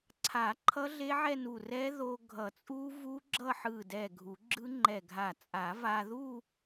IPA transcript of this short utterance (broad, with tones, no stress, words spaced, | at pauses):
ǀʰa˨˩˦ ǃʰʌ˦˥ɮe˦˥ʕɛ˥˧nu˧˩ rɛ˦˥ðo˧ ɡʱʌ˨˩˦t͡sʼu˦˥vu˦˥ ɡ͡ǁʌ˥˧ħɯ˧˩dɛ˧˩ ɡʱu˨˩˦ɡ͡ǁɯ˦˥ŋ͡ǃɛ˧˩ɡʱa˧˩ t͡sʼa˨˩˦va˧ðu˥˧